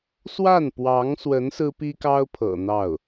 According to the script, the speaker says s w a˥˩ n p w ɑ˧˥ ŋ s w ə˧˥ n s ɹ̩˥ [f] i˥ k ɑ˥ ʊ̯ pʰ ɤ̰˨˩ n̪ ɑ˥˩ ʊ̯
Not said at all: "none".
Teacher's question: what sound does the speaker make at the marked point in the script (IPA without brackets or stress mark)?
p